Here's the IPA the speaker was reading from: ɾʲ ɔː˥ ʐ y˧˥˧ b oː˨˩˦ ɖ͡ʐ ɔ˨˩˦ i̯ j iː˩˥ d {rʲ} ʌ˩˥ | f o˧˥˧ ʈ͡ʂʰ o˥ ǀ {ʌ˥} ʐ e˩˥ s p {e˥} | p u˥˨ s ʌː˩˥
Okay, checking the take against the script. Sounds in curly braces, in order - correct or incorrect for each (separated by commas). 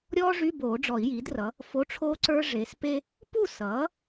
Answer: incorrect, incorrect, correct